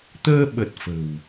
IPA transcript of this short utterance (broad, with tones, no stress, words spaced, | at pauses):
t̪əː˧ɓə˨˩t̚ fə̤˨˩w